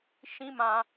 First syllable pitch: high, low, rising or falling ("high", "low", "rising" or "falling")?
high